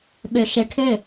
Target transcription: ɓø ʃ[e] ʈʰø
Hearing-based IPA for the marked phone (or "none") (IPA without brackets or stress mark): e